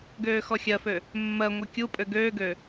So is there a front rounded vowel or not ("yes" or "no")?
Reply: yes